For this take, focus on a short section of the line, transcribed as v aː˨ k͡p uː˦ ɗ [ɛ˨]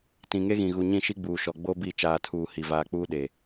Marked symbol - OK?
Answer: no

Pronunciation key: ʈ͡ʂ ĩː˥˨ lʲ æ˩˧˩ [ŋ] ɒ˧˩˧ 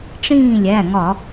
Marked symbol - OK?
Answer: yes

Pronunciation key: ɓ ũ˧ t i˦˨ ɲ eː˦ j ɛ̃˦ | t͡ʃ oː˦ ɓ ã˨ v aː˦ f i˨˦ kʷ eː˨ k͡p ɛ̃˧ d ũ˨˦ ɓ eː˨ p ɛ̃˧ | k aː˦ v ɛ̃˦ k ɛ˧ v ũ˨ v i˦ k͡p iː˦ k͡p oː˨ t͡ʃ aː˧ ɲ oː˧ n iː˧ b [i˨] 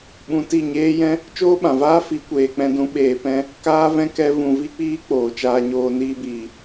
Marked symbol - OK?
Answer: no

